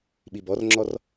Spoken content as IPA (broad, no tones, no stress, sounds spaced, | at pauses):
ɓ i b ɔ r ŋ͡ǁ ɔ r